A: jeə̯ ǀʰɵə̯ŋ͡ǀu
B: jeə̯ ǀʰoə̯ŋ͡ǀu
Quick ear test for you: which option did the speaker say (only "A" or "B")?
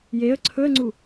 A